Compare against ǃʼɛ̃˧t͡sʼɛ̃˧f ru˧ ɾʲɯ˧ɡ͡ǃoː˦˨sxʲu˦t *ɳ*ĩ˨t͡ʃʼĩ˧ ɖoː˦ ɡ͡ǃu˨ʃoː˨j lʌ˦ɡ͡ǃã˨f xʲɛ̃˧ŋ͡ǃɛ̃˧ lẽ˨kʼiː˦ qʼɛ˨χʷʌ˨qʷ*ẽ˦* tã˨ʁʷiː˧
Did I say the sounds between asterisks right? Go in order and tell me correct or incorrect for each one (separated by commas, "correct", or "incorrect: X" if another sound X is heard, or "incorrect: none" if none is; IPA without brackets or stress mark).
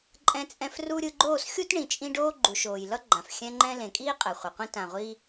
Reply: correct, incorrect: ĩ˦